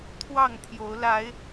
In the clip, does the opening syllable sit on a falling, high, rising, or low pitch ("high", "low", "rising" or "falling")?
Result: falling